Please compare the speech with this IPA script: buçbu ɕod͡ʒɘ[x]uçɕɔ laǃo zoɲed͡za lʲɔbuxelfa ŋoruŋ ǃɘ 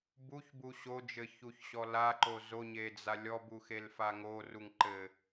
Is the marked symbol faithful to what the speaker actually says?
no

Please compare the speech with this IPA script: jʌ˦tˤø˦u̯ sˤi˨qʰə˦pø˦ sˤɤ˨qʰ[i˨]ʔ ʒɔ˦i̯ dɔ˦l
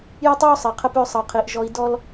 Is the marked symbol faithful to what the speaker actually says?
yes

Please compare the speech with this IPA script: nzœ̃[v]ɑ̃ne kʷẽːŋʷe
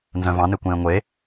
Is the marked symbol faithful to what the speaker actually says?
yes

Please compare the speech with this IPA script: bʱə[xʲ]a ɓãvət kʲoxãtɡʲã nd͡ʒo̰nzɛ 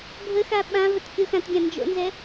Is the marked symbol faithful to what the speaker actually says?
no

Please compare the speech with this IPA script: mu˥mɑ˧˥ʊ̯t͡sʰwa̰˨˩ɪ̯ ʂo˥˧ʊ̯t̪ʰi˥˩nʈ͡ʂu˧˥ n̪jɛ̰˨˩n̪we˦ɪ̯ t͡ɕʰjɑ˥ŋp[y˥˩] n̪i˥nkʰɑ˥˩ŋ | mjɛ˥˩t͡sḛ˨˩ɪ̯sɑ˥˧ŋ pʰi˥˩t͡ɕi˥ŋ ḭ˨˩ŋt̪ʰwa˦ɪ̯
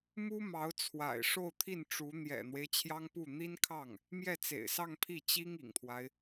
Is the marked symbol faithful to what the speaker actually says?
no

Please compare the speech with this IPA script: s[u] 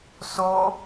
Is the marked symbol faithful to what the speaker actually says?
no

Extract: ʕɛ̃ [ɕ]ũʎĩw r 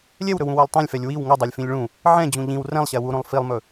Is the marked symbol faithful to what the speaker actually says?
no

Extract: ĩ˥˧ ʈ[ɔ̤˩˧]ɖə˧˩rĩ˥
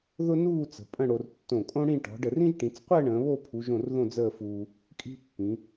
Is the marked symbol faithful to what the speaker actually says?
yes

